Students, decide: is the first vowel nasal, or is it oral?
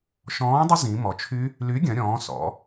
nasal